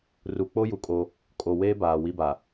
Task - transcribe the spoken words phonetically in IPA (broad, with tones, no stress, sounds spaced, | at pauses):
r u˨ k͡p o˦ j u˨ kʼ o˦ | kʼ o˨ w eː˦ b aː˨ w i˦ b a˨